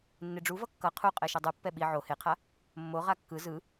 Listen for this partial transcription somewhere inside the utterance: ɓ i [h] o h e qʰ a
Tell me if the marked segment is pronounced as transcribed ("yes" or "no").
no